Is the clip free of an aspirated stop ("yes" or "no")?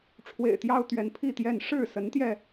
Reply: no